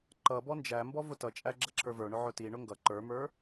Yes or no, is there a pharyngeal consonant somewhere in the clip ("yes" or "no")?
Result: yes